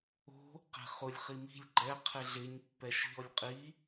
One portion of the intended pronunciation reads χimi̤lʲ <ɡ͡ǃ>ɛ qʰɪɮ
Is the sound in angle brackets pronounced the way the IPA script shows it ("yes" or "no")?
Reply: yes